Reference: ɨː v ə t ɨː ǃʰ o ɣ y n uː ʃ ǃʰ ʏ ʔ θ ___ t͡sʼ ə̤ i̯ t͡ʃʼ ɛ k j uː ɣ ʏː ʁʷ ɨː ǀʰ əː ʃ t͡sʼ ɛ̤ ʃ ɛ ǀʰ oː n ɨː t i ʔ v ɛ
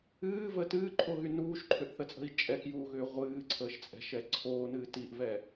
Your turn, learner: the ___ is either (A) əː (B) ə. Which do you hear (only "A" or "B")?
B